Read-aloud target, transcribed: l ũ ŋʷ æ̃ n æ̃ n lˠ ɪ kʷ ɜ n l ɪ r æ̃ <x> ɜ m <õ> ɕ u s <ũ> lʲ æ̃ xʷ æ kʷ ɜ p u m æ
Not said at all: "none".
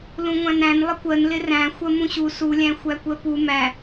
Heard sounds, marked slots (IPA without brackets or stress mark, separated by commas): xʷ, ũ, u